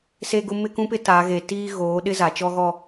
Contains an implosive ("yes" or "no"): yes